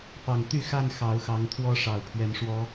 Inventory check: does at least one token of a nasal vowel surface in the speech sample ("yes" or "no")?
no